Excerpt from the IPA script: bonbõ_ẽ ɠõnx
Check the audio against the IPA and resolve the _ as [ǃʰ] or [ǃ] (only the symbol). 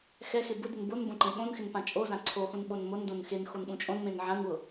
ǃ